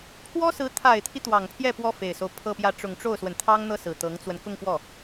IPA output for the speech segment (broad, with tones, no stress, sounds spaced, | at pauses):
pʰ w ɔ˥ s ɹ̩˧˥ t̪ʰ a˨˩ ɪ̯ t̪ʰ i˦ t̪ w ɑ˨˩ ŋ pʰ j ɛ˥˩ p w ɔ˥ f e˨˩ ɪ̯ s o˦ ʊ̯ pʰ ɤ˥˧ p j ä˥˩ ʈ͡ʂ ʊ˨˩ ŋ ʈ͡ʂ o˥˩ ʊ̯ s w ə˩ n t̪ʰ ɑ˥ ŋ n̪ ɤ˥˩ s ɹ̩˨˩ t̪ ɤ˧˥ ŋ t͡s w ə˧ n k ʊ˥˧ ŋ f w ɔ˥˩